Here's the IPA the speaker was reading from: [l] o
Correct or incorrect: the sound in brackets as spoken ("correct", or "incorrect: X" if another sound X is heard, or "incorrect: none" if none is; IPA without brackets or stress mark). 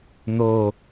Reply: incorrect: n̪